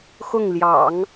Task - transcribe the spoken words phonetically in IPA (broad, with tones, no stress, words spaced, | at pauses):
xʊ˥˩ŋljɑ̰˨˩˦ŋ